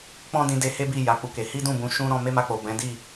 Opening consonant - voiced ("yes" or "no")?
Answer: no